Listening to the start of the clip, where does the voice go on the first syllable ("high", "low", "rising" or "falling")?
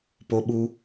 high